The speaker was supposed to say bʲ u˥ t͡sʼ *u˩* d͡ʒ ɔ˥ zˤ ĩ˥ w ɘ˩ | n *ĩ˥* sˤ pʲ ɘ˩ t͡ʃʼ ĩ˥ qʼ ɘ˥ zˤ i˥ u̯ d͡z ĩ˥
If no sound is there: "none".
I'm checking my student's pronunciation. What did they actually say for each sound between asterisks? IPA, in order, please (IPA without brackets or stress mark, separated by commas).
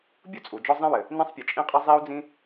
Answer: u˩, ĩ˥